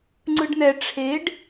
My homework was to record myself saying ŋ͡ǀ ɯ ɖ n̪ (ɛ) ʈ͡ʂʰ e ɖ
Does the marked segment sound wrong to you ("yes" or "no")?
no